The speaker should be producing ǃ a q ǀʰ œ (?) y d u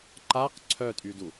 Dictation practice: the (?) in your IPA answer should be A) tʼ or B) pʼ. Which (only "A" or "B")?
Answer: A